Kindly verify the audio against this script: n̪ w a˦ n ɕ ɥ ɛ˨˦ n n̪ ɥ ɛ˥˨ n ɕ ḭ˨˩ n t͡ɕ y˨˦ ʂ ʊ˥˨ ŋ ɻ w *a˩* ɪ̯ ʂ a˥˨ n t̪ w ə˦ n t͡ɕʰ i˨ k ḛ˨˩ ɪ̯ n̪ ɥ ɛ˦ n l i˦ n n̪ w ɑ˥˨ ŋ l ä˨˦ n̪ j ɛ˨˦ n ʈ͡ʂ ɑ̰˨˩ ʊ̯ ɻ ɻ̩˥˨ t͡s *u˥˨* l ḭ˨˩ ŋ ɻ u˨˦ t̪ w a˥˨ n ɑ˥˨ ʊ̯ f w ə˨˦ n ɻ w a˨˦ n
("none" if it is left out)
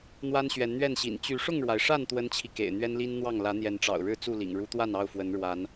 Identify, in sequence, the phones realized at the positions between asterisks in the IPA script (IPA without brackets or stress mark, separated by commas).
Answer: a˩, u˥˨